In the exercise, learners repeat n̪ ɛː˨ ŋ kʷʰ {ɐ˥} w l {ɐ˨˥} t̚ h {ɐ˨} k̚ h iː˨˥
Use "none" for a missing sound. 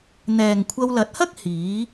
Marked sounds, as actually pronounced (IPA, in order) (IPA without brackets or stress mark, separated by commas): ɐ˧, ɐ˨˥, ɐ˥